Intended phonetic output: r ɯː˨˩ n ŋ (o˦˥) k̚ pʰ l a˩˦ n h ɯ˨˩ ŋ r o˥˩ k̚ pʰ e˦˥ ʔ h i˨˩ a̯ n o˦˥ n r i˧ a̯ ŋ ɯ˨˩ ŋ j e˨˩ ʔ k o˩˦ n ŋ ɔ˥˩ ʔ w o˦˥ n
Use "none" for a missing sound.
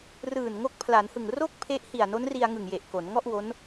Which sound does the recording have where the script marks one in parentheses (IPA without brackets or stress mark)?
o˦˥